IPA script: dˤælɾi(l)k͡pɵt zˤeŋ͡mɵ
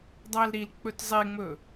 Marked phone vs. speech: correct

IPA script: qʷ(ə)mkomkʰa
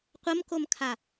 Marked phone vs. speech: correct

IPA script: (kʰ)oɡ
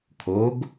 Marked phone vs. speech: correct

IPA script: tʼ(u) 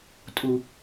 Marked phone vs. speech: correct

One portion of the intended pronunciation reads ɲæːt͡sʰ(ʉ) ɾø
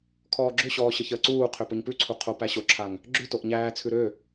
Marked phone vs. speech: correct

